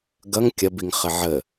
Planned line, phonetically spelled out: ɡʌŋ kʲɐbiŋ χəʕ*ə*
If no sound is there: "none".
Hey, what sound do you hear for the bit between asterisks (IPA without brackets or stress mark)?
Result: ə